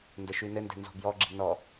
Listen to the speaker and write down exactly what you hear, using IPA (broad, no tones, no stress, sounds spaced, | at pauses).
n d ə ʃ ʉ n ɘ n d ɛ̤ n z ɔ̤ b j ɔ ɡ͡ǁ i̤ n ɔ